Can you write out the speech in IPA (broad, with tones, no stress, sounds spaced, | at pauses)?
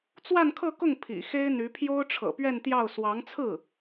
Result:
t͡s w a˥˧ n kʰ ɤ˥˧ k ʊ˥˩ ŋ pʰ ḭ˨˩ x e˥ ɪ̯ n̪ y˧˥ pʰ j o˥ ʊ̯ ʈ͡ʂʰ ɤ̰˨˩ p ɥ ɛ˥˧ n t̪ j ɑ˥˩ ʊ̯ s w ɑ˧˥ ŋ t͡sʰ ɹ̩˥˩